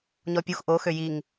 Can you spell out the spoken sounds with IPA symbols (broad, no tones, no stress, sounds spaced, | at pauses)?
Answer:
ɲ ɔ pʲ u x ʔ o x ø j i ŋ